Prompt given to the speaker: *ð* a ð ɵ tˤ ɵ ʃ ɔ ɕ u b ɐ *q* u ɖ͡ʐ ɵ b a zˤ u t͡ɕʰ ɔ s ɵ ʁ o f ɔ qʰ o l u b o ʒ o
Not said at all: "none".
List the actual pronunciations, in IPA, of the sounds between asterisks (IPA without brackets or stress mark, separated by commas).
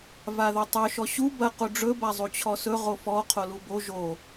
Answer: v, q